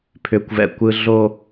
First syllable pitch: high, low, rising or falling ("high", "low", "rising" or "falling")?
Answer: high